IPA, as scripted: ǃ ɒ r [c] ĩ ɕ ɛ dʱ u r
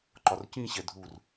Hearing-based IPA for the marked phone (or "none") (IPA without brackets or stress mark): c